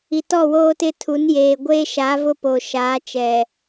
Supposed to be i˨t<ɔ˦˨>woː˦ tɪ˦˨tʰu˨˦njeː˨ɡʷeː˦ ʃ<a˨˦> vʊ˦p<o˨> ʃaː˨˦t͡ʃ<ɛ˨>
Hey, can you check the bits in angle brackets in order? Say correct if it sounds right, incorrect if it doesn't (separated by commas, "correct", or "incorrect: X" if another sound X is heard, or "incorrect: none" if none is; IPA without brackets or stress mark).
correct, correct, correct, correct